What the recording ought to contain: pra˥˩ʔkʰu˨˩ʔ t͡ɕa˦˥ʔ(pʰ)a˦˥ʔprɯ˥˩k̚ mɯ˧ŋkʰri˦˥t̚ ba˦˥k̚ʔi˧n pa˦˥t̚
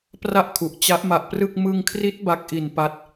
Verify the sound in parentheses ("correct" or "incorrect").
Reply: incorrect